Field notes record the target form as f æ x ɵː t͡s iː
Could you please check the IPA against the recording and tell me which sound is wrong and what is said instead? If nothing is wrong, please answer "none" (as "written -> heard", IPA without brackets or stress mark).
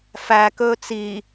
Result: x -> k